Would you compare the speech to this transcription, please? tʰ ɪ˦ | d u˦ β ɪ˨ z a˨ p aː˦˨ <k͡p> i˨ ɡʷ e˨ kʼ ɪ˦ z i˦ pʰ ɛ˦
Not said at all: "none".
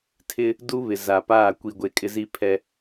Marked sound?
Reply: kʷ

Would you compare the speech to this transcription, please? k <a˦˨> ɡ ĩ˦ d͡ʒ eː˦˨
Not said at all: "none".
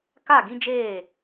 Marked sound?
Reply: a˦˨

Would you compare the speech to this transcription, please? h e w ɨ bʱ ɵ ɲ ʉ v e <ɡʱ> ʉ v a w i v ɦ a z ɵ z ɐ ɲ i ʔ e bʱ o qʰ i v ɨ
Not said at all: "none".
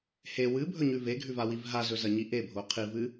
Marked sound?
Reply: ɡʱ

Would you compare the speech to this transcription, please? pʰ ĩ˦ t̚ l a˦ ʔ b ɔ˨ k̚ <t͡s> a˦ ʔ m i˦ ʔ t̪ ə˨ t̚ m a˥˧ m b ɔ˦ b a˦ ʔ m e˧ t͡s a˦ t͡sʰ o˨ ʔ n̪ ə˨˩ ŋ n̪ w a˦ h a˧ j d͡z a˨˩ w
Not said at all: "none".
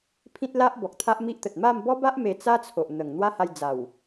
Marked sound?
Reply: t̪ʰ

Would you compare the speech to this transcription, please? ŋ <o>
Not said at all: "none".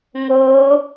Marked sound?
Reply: o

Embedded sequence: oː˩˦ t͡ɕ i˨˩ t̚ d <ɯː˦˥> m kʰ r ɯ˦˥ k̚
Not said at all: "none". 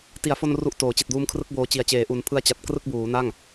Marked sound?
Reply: uː˦˥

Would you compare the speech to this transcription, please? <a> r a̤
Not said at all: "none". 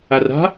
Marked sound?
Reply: a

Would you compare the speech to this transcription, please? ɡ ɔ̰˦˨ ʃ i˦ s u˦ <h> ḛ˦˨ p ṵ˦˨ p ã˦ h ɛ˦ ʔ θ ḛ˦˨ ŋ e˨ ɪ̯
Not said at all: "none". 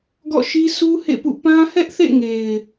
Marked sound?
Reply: h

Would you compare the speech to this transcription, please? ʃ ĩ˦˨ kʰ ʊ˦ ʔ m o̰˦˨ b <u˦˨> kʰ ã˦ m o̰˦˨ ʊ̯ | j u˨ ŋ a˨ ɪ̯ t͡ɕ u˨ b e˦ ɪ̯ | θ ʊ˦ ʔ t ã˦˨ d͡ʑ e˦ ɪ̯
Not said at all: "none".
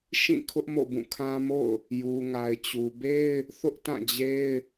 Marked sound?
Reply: ũ˦˨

